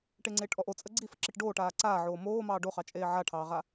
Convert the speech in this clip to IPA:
ʈ e ŋ͡ǀ eː ʈ ʔ ɔ ʔ o t͡sʼ ə ɡ͡ǀ i f ə ǁ i ʈ ɖ oː ʈ aː ǀ aː ʕ oː m oː m ɑː ɖ o χ ɑ t͡ʃʼ eː ʕ a ʈʰ ɑː ʁ a

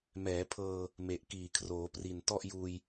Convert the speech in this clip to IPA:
m ɛː˩˦ pʰ ɤː˧ | m e˨˩ ʔ k iː˨˩ kʰ r oː˩˦ p r i˨˩ n t ɔ˥˩ ʔ j uː˧ j

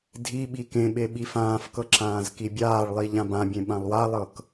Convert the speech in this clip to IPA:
dʱ i ɓ i k ẽ ɓ e ɓ i f ãː f k ɤ ǁ ãː z k i bʲ aː ɭ lˠ i ʎ ã b ã bʲ ẽ ɓ ã lˠ w a lˠ ɤ k

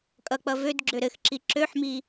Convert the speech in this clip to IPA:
kʼ ʌ k͡p ʌ v ø d ɡ͡ǁ ø ɾ ɘ x ǁ i ǁ ø ħ m i

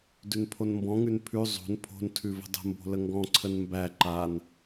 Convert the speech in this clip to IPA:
d ʉ n pʰ o n m b ɔ̃ ŋ ʉ n pʰ ʉ zˤ o̤ n pʰ o̤ n tʰ ʉ v ə̤ dˤ ə̤ m b o̤ l ə ŋ ɡ ɔ̃ ǀʰ ə n m b æ ǃ a n

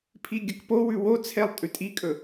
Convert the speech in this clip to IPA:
pʰ i ɡʲ ɐ k p o w ʉ w o t͡sʰ e lˠ tʼ ʉ tʼ i kʼ ɵ

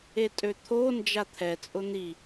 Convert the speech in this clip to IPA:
e tʼ ø t̪ʰ o n d͡ʒ a t̪ʰ ɛ t͡sʼ ʊ n̪ i

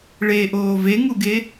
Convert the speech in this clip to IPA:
ɭ e ʔ oː v e ŋ u ɡ e

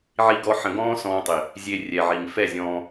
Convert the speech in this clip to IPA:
ʕ i˦ ɡ ɔ˦ ħ ə̃˧ ɡ ɔ̃ː˦ s ɔ̃ː˧ tˤ i˨ | zʲ e˧ rʲ ɛ˨ ʕ i˨ ŋ f ɛ˦˨ zʲ ɔ̃ː˧

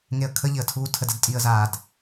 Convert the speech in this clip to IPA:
ŋ e ə̯ kʰ ə ʎ ɪ ə̯ tʰ uː tʰ ə d ə d tʼ i ə̯ z aː d

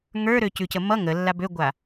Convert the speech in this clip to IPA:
ŋ ə˞ ɾ ø c ʉ c ə m ʌ ŋ ə lː a b ø ɡʷ a

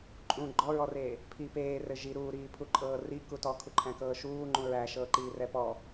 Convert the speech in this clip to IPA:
ǃʼ ũ ɡ͡ǃ ɔ ɹ ɔ r eː | pʰ i p eː r ɘ ʒ i ɾ uː ɾ iː pʰ u ǃʼ ɤː r i k u t ɔ kʰ u ǃʰ æ̃ k ɤː ʃ uː ŋ͡ǃ ũ ɹ æ ʃ ɤː ǃ iː r ɛ p ɔ

